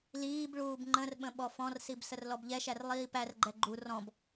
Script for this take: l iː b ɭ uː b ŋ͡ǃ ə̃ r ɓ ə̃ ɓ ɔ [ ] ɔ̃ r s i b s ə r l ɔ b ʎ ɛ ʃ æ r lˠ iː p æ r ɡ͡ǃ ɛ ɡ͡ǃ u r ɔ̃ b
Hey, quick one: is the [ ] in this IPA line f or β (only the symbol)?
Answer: f